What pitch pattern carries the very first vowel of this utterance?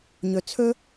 low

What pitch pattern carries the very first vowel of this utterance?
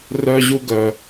high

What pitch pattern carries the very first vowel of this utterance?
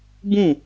falling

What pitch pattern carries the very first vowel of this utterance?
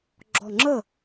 low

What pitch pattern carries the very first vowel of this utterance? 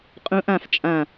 rising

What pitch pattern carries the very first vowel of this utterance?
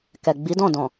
low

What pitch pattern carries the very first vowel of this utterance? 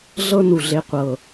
high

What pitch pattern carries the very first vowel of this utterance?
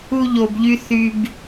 high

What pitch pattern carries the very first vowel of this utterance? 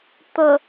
low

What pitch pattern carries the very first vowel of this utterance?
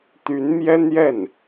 rising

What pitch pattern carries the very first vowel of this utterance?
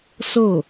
falling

